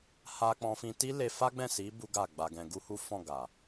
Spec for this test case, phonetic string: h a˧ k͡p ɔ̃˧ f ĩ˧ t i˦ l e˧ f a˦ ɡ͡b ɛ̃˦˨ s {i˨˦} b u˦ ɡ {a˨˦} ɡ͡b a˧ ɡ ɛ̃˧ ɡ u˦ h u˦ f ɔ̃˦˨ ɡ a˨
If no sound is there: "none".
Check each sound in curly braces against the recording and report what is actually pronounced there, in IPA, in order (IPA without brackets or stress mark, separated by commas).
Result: i˨˦, a˦˨